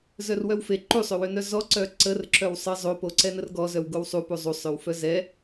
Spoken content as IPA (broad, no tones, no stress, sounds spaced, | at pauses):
z œ r w œ w f e ǃ u sˤ ø w ø n œ z ɔ ǀ œ ǀ ə r ǁ œ w sˤ ə zˤ o p o ǀ ɛ n ə r ɡ ɔ z œ w ɡ o w sˤ u p u zˤ u sˤ ø w f œ z ɛ